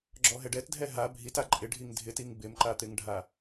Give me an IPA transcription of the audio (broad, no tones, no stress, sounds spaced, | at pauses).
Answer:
ɡ͡ǁ ɔ ɦ ɛ ɖ ɛ t dʱ ɛ ɦ a bʱ i t a ǃʼ ɪ ɖʱ i ŋ dʱ ɪ t i ŋ b ɪ m ǃ a t̪ ɪ ŋ ɖʱ a